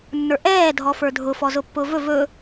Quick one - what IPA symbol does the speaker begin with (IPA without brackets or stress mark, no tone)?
nː